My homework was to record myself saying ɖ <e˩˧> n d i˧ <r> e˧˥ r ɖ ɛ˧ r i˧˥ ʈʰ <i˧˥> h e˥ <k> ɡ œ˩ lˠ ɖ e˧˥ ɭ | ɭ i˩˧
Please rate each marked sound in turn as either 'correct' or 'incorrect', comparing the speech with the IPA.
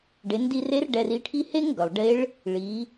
correct, correct, incorrect: i˥, incorrect: ŋ

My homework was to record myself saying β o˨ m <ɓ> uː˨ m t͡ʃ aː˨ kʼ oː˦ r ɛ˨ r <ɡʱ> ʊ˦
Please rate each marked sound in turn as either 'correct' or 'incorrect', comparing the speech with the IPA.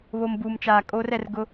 incorrect: b, incorrect: ɡ

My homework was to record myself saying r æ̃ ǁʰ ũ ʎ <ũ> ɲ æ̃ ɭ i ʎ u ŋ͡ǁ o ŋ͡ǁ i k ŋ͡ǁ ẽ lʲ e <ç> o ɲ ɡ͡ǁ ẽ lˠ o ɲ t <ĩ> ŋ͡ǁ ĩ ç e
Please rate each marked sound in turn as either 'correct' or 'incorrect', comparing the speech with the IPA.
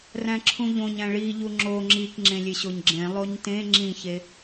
incorrect: õ, incorrect: ɕ, incorrect: ẽ

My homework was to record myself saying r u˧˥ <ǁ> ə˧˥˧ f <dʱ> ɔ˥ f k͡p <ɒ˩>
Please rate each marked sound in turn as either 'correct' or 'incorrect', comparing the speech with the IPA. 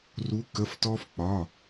incorrect: k, incorrect: t, incorrect: ɒ˧˥˧

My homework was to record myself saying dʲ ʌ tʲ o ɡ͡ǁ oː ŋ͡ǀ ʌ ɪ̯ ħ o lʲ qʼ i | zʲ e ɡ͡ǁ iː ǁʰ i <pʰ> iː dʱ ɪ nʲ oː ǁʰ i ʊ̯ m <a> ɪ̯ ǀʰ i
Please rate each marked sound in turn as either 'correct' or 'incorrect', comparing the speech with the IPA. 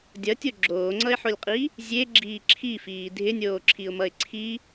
incorrect: f, incorrect: ʌ

